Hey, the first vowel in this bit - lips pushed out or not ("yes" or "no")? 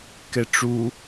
no